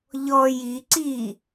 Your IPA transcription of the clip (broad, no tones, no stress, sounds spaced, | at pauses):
ʎ ɔ j i ǀ i